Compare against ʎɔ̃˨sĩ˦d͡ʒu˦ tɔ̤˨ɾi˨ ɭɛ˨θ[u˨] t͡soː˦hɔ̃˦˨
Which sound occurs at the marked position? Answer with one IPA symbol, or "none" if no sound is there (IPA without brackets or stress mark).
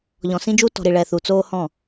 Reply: u˨